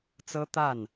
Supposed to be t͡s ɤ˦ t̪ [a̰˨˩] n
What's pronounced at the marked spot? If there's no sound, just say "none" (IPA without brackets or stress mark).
a˥˨